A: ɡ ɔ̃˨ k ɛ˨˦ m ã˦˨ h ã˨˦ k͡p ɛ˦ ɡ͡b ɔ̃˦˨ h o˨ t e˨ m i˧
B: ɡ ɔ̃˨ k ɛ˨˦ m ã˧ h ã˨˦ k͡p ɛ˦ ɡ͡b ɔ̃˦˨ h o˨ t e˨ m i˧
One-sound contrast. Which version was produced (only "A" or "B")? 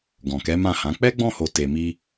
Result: A